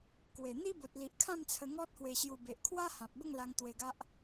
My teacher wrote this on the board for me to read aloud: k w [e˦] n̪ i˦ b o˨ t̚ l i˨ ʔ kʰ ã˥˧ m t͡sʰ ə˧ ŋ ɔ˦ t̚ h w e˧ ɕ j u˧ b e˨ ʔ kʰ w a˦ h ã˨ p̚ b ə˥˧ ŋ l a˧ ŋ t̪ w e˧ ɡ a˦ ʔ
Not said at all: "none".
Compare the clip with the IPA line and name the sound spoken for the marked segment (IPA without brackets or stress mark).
e˨˩